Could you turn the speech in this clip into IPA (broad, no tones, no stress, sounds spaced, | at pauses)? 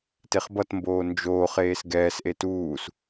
t e χ b ʌ t m b oː n d͡ʒ oː χ eː s ɡ ɛː s ʔ e t uː s